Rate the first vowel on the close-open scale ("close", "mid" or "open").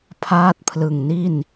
open